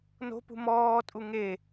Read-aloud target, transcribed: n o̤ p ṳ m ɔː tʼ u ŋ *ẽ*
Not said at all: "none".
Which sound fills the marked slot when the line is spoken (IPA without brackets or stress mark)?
e